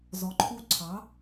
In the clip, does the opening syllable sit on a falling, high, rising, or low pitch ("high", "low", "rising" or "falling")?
rising